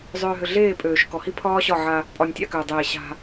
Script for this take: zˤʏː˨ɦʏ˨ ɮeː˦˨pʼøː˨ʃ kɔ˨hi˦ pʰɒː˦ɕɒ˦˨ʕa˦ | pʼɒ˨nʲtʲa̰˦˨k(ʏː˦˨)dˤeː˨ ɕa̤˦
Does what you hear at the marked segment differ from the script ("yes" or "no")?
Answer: yes